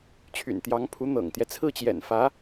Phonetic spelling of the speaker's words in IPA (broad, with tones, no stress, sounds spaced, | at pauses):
t͡ɕʰ y̰˨˩ n t̪ j ɑ˧˥ ŋ pʰ u˧˥ n̪ ɤ̰˨˩ ŋ t̪ j ɛ˦ t͡sʰ ɹ̩˥˩ t͡ɕ j ɛ̰˨˩ n f ä˧˥